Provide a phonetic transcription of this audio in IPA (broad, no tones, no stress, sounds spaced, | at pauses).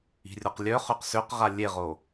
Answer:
i̤ rʲ o q lʲ œ χ ø q s ø q ʁ a lʲ e ʁ o